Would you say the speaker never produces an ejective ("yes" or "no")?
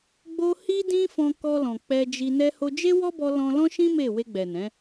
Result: yes